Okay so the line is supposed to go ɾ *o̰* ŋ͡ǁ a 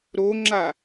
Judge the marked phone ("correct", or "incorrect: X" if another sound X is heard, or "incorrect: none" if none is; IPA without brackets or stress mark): incorrect: o